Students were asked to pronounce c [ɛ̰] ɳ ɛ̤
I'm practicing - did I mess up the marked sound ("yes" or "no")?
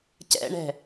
no